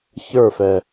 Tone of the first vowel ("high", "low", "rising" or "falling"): falling